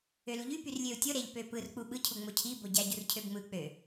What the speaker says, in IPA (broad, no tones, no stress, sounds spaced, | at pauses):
ø l u ʎ y p y r lʲ ø u̯ tʲ o ɾ e ʎ p ø p ɯ r k͡p u ɓ ɯ cʰ u ŋ͡m o cʰ i b o ɟ æ ɟ u r cʰ ø b ŋ͡m ɯ k͡p ø